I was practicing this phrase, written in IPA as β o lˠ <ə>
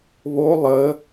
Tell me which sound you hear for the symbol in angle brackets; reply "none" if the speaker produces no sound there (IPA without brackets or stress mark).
ə